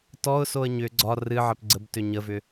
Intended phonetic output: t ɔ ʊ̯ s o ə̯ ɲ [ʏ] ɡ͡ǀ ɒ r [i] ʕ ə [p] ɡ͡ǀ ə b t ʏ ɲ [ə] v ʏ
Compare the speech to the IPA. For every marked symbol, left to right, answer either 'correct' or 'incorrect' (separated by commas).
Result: correct, incorrect, correct, correct